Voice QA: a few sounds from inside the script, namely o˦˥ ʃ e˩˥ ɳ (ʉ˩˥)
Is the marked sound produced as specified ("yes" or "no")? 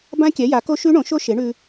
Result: no